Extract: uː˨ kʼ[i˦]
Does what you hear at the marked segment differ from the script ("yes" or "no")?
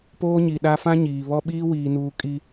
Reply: no